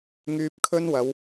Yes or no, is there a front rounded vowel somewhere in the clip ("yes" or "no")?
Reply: yes